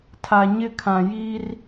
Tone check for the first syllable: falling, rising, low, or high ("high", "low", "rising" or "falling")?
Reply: low